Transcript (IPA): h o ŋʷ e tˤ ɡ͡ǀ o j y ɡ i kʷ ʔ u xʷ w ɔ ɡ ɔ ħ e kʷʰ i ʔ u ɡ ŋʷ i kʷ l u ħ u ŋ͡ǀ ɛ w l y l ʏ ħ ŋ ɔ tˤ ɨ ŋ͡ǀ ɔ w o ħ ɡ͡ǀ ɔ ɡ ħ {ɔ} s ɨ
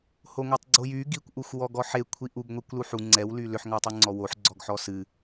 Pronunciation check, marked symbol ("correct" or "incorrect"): correct